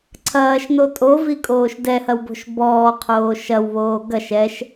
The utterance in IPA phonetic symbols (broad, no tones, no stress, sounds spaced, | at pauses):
ǀʰ ɐː ʃ n o tʼ o v i kʼ oː ʃ d ɛ h ɐ w b o̤ ʃ b ɔː qʰ oː ʃ ɐ w β oː ɡ ɐ ʃ ɛ ʃ